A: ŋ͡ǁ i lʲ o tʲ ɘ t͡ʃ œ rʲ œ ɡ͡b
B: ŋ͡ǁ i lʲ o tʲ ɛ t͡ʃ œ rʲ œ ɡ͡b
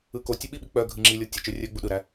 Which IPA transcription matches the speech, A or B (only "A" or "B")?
A